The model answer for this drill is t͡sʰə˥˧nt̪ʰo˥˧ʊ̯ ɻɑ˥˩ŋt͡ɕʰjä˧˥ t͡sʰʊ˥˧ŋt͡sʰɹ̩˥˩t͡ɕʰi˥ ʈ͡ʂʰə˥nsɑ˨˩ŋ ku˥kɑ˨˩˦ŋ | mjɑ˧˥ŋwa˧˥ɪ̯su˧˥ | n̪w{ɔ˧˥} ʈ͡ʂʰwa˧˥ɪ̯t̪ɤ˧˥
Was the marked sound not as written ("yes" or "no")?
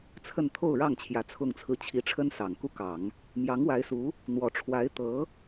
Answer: no